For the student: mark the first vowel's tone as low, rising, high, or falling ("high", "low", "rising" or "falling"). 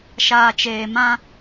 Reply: low